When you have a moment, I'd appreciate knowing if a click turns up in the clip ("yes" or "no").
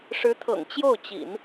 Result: no